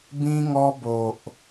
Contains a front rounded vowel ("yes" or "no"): no